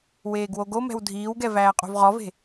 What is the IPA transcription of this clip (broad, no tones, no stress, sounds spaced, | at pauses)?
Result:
w eː ɡ w o ɡ o m ɛ̤ w dʱ iː w ɡ ɛ v æː qʼ o̤ v ʁ ɔ v e̤